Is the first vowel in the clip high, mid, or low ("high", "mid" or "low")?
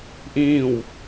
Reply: high